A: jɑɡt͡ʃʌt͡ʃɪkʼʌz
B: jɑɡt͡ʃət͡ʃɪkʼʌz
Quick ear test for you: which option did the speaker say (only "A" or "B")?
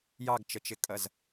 B